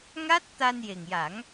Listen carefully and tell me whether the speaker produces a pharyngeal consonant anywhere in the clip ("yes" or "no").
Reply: no